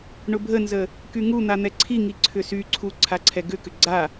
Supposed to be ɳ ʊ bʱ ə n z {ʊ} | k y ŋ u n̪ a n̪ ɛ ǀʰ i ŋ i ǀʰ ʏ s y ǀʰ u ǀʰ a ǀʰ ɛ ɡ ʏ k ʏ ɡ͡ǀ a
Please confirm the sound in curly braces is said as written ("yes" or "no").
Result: no